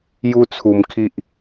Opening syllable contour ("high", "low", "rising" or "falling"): high